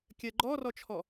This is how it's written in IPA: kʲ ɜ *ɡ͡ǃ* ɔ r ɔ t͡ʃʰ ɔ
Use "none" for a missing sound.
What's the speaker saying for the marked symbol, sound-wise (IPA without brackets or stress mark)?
ɡ͡ǃ